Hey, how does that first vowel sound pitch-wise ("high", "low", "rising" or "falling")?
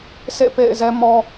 falling